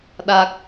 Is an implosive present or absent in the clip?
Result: present